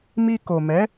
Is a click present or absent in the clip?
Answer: absent